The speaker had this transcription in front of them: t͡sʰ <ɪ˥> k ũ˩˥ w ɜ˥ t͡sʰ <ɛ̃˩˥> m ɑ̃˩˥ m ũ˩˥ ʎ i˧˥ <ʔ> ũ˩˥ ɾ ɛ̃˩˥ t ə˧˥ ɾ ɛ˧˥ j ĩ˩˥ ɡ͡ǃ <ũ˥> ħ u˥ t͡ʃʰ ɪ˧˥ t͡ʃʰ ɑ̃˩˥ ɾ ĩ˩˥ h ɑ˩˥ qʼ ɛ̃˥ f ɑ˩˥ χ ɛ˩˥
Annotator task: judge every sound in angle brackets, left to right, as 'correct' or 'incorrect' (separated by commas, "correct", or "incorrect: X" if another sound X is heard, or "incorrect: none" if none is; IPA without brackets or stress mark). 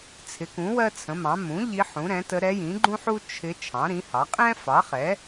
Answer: incorrect: ɪ˩˥, incorrect: ə̃˩˥, incorrect: ħ, correct